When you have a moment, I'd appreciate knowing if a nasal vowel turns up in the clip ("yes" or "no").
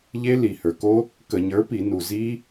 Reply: no